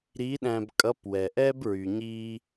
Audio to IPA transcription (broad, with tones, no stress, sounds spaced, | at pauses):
ɾ iː˧˥ ɗ æ̃ː˧ b kʼ ʌ˧˥ p w ɛ˩ ʔ ɛ˥ b ɹ y˩ ɲ iː˧